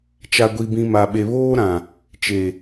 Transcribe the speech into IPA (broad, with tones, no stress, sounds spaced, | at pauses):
t͡ʃ a˨ ɡʷ i˨ b ĩ˨ m a˨ ɓ e˨ β oː˦ ɾ ã˨ | t͡ʃ e˨